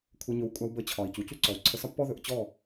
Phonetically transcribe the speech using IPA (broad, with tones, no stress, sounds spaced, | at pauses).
kʷʰ ə˧ ɲ ɵ˧ w kʷʼ a˧ w b ə˧ t͡ɕʰ ɒ˨ i̯ c u˨ c u˦ ǀ ɔ˨ u̯ ǀʰ ə˧ s ɒ˦ pː ɔ˦ ð ɵ˧ ʔ t͡ɕ ɔ˦˨